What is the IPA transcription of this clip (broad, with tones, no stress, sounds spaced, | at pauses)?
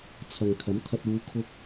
t͡sʰ ɐ˨ ŋ kʰ ɐ˨˥ m t̪ʰ ɐ˧ t̚ uː˨˧ kʰ ʊ˧ k̚